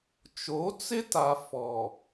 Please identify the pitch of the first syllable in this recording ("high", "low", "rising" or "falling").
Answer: rising